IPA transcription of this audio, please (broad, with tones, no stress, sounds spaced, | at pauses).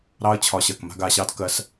ɾ ɑ˦ ə̯ t͡ɕʰ ɒ˨˦ ɕ ɜ˨ k m a̤˦ ɡ a˧ ɕ ɑ˦ d k ɜ˧ s